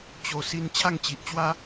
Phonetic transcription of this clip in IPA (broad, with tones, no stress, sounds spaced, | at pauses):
t͡ɕ o˨˩ s i˧ n t͡ɕʰ a˥˧ ŋ t͡ɕ i˨ ʔ t͡ɕ w a˦